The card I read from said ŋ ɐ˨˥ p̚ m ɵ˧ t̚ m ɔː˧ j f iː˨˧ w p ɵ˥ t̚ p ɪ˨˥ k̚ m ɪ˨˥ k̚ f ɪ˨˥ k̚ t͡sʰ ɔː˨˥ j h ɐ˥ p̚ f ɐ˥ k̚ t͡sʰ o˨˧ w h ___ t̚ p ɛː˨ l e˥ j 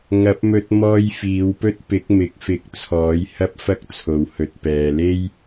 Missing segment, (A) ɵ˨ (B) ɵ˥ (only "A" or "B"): A